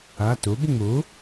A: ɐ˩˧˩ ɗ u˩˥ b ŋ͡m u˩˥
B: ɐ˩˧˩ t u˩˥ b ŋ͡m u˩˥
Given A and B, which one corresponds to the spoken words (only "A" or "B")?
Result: B